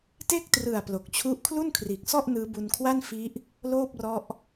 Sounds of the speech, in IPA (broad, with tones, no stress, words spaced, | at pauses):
te˥˩k̚trɯ˨˩a̯ plo˨˩k̚t͡ɕʰu˥˩ʔ kʰlu˥˩nkʰriː˨˩k̚sɔ˥˩ʔ nɯː˦˥bu˧nkʰwa˥˩n fi˦˥ʔ | loː˥˩p̚rɔ˦˥ʔ